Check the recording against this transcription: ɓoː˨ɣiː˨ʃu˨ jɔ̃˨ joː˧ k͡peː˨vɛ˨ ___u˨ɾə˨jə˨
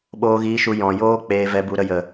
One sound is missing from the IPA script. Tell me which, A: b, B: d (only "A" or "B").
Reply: A